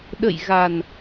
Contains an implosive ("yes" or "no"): yes